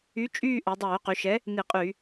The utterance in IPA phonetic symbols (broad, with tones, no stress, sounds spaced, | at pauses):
y˨˥ t͡ʃʼ yː˦˨ ʔ œ˩˧ dˤ œː˧˩˧ q y˩˧ ʃ ɛ˨˥ | n i˧˩˧ qʼ y˧˩˧